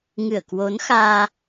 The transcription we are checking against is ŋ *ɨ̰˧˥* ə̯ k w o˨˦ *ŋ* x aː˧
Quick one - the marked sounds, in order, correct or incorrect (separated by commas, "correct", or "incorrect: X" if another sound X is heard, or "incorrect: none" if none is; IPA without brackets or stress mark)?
incorrect: ɨ˧˩, incorrect: n